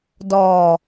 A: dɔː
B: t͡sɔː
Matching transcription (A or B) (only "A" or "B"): A